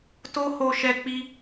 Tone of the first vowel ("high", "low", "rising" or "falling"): high